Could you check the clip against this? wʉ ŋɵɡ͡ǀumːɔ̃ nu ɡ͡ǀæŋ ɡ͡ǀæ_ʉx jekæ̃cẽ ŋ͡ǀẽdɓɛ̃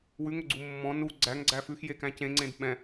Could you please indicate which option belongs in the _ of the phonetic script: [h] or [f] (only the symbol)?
f